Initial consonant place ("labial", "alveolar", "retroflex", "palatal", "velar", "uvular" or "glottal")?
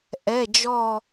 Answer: glottal